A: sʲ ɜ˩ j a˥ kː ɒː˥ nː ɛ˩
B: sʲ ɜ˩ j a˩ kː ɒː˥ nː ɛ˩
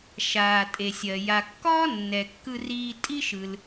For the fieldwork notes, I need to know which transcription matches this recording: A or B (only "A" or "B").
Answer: B